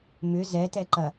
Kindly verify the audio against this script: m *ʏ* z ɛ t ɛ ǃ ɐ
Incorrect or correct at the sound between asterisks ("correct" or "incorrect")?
correct